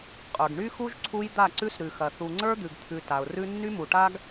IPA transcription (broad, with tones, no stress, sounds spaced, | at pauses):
qʼ ə˞˨ ɡ ɳ y˦ x u˦ ʒ ǀʰ u˦ j d̪ a˦˨ ǀ ʉ˦ s ɾ ʉ˨ x ɐ˨ θ u˨ ŋ͡ǀ ə˞˦ d̪ ʉ˨ ɡ t̪ʰ ʉ˨ t a˨ ʊ̯ r ʉ˦ nː y˦ m u˨ ʈ a˦ ɡ